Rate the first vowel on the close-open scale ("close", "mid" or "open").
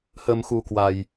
mid